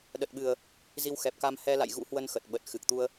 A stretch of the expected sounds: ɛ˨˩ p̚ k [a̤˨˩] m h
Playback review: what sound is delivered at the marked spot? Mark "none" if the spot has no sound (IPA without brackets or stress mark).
a˧